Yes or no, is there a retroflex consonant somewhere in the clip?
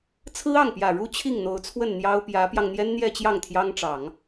yes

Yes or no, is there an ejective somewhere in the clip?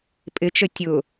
yes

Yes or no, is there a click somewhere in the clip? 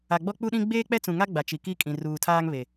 no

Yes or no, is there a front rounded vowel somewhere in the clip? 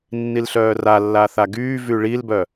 yes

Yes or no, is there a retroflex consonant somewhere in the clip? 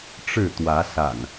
yes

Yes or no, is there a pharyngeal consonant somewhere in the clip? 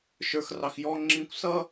no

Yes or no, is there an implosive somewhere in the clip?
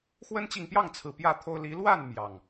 no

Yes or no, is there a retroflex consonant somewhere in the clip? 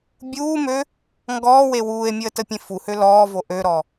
no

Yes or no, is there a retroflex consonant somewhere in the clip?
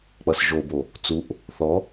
no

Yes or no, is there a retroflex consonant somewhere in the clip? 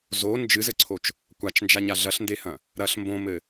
no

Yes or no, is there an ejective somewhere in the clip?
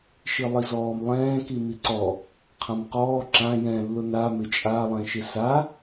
yes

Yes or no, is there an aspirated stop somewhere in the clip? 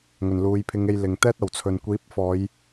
yes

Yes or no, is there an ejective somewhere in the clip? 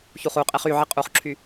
yes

